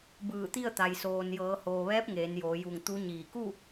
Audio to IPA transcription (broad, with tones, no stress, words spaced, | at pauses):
bɯː˧˩t̪i˥˨ə̯t̪a˩j soː˩n jɤː˩˧hoː˩ʋɛː˧˥p̚ ŋeː˩˧njoː˩˧ju˧˩ŋ t̪u˧˥ɲiː˧˩ ku˥˨